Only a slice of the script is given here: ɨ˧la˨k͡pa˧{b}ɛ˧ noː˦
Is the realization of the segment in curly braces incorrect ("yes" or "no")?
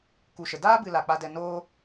yes